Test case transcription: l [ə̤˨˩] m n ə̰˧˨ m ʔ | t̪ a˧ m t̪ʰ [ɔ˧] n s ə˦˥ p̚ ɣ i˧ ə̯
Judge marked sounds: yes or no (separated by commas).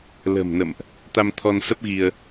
yes, yes